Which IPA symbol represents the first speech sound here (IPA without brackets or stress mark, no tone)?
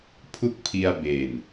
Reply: pʰ